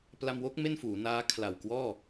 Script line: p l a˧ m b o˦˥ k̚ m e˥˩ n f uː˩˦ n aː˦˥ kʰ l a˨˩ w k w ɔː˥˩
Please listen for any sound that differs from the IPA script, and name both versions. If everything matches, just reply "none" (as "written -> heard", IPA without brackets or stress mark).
b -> w